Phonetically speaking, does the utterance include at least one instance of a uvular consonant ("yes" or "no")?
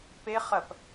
yes